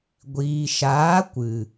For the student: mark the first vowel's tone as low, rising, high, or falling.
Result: low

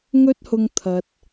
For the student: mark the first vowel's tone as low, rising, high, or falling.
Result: high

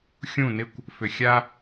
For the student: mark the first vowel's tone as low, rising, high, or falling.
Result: falling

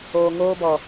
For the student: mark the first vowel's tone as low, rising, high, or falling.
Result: low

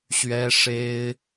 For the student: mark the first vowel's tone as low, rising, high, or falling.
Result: high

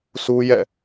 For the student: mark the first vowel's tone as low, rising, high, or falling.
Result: high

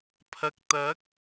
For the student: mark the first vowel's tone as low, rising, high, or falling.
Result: low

